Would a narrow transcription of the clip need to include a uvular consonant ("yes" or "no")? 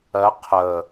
yes